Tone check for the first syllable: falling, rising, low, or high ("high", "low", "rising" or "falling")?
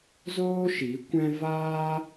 high